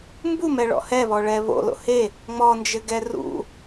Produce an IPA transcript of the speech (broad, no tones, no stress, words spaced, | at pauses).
mbumɛɭɔ̰ hɛβɔɭɛ βo̰lo̰ he | ŋ͡mɔnd͡ʒɘɡɛ rṵ